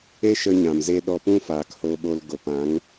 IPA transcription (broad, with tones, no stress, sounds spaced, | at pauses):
e˦ ʃ ə˧ ɲ ã˨ m z e˧ ɗ ɔ˧ p ũ˦ f aː˨ k h o˧ ɓ o˧ l ɡ o˨ p ã˨˦ ŋ